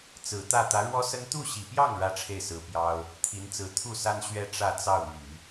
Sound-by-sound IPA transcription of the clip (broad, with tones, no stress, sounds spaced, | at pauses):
t͡s ɹ̩˨˩ t̪ ä˥˩ t̪ ä˧˥ ɻ w ɔ˥ s ə˥ n t̪ u˥˩ ɕ i˨˩ p j ɑ˥˩ ŋ ɻ ä˥ ʈ͡ʂʰ e˥˩ ɪ̯ s ɹ̩˧˥ p j ɑ˥ ʊ̯ | t̪ʰ i˧˥ n t͡s ɹ̩˧˥ t̪ʰ u˥˩ s a˥ n ɕ ɥ ɛ˥ ʈ͡ʂ ä˥˧ t͡s ɑ˥˩ ʊ̯ n̪ y˨˩˦